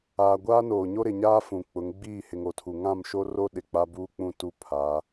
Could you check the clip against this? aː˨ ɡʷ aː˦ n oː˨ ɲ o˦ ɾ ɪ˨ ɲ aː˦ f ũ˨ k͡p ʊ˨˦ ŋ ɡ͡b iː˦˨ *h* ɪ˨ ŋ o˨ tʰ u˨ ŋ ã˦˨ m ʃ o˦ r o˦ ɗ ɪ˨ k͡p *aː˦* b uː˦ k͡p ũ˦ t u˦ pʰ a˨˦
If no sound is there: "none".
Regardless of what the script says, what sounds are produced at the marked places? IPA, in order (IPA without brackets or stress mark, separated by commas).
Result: h, a˦